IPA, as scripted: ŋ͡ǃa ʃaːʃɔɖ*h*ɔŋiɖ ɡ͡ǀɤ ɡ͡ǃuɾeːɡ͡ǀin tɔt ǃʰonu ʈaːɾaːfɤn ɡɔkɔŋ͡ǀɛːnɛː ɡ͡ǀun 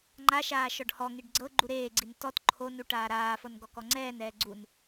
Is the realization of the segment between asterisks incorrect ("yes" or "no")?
no